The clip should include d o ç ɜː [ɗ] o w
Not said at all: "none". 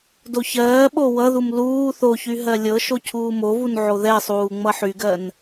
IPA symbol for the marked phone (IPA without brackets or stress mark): ɓ